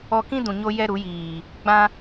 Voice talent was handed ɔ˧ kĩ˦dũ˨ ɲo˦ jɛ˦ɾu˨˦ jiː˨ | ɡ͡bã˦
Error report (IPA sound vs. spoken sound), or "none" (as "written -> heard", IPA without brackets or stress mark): none